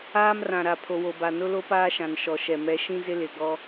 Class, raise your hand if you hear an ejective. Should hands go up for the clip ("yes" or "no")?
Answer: no